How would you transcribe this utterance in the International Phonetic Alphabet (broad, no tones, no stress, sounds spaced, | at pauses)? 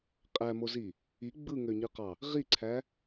qʼ æ m o z i | i ɡ͡b ɯ ŋ ø ɲ ɯ q ɑ | ʁ i ǀʰ æ